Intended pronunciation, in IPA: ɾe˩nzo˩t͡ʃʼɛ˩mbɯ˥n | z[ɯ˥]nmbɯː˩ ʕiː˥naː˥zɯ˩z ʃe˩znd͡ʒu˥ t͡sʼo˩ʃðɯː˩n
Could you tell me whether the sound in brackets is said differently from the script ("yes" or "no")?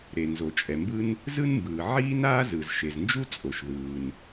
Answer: no